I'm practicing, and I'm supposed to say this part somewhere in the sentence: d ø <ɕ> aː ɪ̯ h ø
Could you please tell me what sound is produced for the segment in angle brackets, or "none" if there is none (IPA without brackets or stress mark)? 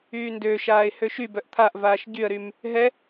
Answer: ʃ